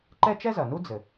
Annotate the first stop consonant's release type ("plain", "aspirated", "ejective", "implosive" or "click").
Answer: click